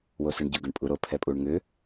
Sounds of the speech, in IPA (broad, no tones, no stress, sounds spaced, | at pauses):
w o s œ ɳ ɟ ʏ ɡ ʊ ɳ pʼ u ɾ o pʰ ɛ pʼ u ɳ ŋ ʏ